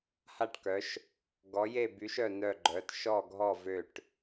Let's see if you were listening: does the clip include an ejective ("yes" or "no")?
no